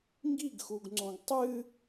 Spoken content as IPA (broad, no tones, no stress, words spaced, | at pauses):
ŋɡiɡxuɡŋ͡ǀõɡ tˤɨ